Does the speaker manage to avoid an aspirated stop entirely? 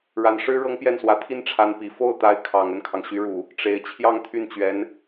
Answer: no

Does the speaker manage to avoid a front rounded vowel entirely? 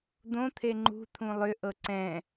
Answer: no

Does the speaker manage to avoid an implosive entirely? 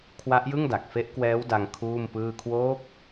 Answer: yes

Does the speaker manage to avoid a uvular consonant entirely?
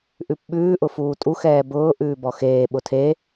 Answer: yes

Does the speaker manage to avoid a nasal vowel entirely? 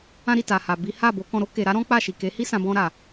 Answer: no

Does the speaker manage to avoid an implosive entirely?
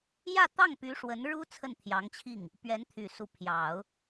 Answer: yes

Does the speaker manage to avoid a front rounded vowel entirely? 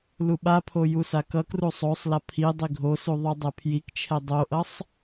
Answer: yes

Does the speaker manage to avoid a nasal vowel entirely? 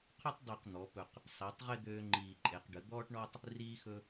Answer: yes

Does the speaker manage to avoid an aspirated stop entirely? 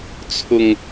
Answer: no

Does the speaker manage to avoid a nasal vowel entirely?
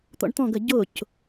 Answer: no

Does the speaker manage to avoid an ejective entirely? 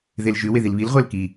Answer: yes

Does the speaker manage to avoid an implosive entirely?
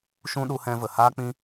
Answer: no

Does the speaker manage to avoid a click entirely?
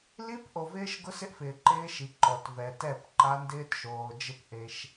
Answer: no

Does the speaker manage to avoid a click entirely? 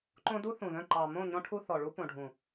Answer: no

